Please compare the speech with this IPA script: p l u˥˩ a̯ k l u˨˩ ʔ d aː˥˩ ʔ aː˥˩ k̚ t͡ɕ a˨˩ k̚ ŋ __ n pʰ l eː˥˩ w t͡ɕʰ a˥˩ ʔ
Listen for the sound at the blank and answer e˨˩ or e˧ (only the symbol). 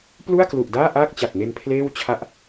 e˧